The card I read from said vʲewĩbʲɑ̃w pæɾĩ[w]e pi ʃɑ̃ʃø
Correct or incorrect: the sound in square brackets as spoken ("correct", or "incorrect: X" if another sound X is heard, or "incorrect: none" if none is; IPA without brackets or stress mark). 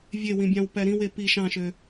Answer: correct